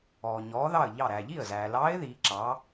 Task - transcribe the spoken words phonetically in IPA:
ɔː˩ ɲɔː˩˧ðɑ˧˩ə̯ʎɑ˧˩ ɾæː˩ʎi˥˩ə̯zæː˩lɑː˧˥ɪ̯ ði˩˧ǁɑ˩˧

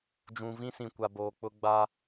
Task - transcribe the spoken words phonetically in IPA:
d͡ʒũ˨vĩ˦sĩ˨kʷa˨ boː˨k͡pʊ˦ ɡ͡ba˦

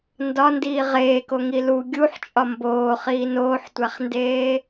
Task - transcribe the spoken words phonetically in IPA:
ndɒndiː ʁeːkoŋi lu ɡʲuħt͡ʃʼɒ mboːχiː noːħtʷæχndeː

